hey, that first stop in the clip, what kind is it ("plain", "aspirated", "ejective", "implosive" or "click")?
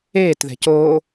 plain